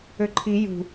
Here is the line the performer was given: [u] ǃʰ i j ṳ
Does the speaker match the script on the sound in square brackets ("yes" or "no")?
no